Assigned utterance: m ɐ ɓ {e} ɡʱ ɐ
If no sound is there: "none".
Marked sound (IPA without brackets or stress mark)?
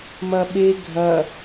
e